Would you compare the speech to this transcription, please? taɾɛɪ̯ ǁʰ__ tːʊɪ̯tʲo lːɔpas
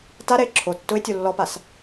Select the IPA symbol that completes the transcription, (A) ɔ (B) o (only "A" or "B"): B